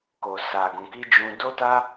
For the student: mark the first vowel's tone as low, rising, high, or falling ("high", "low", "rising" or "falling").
low